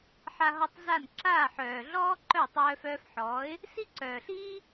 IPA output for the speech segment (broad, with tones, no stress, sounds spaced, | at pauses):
ħ a˧ ɦ ɔ˧ tˤ z a˦˨ n ǁ aː˦˨ ħ œː˨ ɮ ɔː˦ ǃ œ˦˨ tˤ œː˧ f œː˧ f ħ ɔː˨˦ ɪ̯ | s i˦ ǀ œː˨ ɬ iː˦